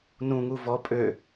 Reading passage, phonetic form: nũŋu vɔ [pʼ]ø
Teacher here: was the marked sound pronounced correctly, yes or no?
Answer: yes